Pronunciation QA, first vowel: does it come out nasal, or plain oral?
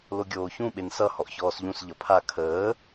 oral